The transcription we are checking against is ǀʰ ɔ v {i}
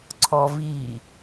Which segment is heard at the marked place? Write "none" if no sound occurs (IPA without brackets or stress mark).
i